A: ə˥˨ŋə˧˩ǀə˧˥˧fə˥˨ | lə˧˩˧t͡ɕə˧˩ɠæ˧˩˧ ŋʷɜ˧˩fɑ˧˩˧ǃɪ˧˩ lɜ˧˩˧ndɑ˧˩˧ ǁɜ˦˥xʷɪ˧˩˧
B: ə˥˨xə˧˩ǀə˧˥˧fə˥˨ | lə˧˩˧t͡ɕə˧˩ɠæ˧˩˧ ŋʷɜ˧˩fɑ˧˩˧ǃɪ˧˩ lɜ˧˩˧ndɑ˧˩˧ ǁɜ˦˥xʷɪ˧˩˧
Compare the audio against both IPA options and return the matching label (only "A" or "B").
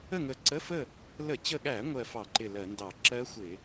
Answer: A